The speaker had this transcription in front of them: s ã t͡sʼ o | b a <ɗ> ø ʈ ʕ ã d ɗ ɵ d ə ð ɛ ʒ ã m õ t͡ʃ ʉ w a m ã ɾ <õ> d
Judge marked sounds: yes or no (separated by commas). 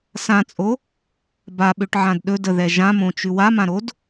no, no